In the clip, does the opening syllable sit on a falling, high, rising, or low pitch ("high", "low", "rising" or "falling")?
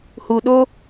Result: low